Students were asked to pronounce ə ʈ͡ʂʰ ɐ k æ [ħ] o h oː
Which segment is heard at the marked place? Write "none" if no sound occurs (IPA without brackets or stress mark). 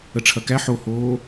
ħ